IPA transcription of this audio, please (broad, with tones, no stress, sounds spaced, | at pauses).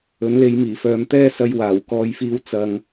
ɵ˨˥ n l e˨˧ j m iː˨˩ f œː˨˧ m t̪ ɛː˥ s ɐ˧ j w aː˨˩ w k ɔː˧ j f iː˧ w t͡s ɐ˨ ŋ